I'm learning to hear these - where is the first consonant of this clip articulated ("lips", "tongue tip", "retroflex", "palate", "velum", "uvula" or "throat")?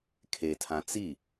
velum